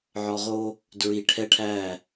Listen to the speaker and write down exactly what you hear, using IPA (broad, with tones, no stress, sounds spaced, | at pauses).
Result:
ʕ ɔ˨ ʁ o˦ | d ɹ i˨ ʈʰ ɛ˦ ʈʰ æ˦˨